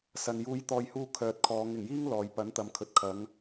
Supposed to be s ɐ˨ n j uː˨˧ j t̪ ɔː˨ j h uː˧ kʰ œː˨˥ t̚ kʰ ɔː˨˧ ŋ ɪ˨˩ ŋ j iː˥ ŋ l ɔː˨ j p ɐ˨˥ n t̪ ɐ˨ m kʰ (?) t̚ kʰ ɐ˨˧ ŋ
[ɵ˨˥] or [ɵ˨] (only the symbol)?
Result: ɵ˨